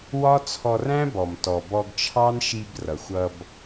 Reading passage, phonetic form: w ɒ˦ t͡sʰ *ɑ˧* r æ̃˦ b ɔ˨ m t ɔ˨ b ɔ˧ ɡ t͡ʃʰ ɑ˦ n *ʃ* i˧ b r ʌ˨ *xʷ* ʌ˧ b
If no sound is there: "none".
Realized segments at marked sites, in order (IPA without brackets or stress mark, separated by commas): ɔ˧, ʃ, xʷ